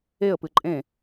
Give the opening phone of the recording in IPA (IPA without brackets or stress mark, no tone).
e